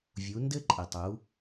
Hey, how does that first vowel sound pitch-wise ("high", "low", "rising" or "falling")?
rising